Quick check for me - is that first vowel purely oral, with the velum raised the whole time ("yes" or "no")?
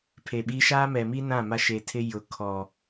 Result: yes